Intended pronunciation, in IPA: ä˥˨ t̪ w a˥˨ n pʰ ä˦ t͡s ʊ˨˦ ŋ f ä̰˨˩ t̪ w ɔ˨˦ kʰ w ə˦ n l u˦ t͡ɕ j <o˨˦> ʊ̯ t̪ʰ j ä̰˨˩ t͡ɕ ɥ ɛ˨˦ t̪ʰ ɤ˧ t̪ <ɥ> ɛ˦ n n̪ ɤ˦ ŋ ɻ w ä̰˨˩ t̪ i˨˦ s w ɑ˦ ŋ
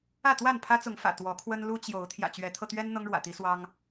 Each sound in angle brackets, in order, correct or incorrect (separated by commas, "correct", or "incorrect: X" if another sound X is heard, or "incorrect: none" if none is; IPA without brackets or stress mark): correct, correct